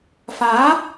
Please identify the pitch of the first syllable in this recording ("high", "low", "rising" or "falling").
rising